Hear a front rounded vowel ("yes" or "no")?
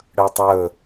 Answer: no